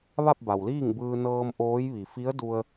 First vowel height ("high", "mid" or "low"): low